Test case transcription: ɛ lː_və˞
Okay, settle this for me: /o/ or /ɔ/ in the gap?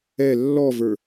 ɔ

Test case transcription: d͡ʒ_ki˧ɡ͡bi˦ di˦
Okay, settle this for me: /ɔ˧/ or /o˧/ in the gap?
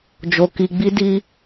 o˧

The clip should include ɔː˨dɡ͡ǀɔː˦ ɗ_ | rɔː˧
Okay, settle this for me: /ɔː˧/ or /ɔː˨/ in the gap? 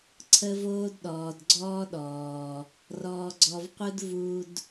ɔː˨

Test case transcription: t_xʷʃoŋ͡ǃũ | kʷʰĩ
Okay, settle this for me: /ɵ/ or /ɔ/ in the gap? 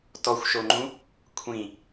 ɔ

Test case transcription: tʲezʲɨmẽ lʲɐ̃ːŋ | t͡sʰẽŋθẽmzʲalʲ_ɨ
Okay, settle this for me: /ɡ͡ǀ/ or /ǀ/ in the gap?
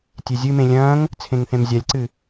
ǀ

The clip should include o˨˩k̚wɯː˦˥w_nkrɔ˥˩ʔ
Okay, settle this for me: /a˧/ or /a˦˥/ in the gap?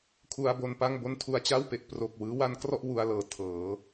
a˦˥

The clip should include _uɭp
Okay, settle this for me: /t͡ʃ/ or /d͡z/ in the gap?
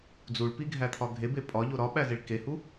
d͡z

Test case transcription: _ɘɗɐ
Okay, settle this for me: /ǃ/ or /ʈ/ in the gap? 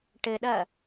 ʈ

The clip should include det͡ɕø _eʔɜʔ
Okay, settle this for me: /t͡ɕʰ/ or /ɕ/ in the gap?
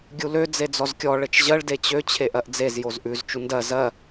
t͡ɕʰ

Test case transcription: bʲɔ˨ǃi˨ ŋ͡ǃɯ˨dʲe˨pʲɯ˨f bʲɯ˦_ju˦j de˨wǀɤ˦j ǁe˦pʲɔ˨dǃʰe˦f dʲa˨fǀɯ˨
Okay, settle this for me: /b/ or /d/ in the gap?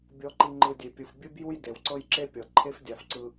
b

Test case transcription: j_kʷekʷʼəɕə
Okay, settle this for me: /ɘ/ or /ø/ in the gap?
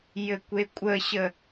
ɘ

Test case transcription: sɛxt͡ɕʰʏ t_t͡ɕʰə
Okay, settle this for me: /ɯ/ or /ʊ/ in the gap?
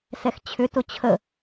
ʊ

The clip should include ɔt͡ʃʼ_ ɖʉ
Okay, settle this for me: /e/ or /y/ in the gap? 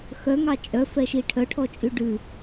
y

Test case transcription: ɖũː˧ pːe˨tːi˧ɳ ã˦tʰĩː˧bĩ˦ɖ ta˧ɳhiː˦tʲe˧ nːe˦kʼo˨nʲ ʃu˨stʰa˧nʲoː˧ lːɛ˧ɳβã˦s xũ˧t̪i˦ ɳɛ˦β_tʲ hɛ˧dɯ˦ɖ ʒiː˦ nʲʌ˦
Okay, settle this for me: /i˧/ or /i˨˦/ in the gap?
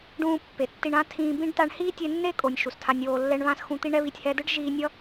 i˧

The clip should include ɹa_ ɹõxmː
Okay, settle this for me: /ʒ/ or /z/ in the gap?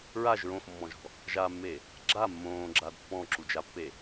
ʒ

